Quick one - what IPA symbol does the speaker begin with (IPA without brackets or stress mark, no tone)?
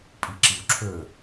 pʼ